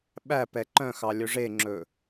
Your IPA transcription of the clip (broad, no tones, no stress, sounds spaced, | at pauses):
ɓ æ p ɛ ǃ œ̃ x ɑ lʲ ɵ ʐ e ŋ͡ǁ ɵ